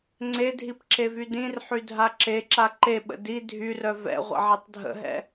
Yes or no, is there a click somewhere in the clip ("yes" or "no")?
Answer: yes